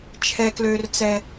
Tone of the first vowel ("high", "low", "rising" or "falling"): high